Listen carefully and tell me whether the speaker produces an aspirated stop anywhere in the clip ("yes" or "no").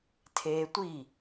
yes